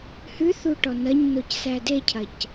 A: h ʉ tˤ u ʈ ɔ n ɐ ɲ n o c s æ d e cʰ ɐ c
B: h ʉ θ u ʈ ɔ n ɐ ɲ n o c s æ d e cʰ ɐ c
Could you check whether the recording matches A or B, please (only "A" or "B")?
B